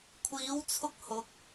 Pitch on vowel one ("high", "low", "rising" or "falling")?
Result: rising